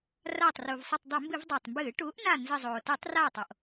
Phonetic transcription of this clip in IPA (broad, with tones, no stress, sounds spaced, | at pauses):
r aː˧˩ tˤ r uː˩ v sˤ ɨ˧˩ tˤ dˤ o˧˩˧ m b ɨ˧˩˧ v dˤ a˩ tˤ m b ɨː˧˩˧ ʈ uː˩˥ ʔ n a˧˩ n z ɨ˧˩ zˤ oː˩ t ɨ˧˩˧ tˤ r aː˧˩ tˤ o˩ ʔ